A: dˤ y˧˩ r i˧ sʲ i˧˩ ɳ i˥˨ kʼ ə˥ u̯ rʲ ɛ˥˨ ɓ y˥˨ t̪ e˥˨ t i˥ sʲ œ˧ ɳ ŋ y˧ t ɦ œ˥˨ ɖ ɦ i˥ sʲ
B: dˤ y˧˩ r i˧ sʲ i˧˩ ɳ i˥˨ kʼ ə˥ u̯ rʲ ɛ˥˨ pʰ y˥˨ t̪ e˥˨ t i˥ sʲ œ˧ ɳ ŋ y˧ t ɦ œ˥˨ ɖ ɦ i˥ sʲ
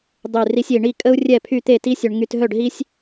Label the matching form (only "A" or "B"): B